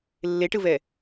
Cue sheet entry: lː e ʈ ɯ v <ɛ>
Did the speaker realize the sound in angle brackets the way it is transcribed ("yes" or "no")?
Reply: yes